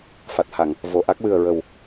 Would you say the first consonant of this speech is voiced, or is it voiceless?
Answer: voiceless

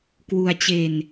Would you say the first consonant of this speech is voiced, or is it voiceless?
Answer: voiceless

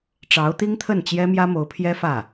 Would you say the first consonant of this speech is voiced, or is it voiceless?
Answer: voiceless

